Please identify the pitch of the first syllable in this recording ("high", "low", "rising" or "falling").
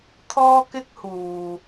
high